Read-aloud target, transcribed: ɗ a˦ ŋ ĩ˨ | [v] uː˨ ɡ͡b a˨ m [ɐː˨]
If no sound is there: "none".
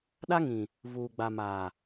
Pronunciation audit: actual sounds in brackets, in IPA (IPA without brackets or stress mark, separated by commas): v, aː˨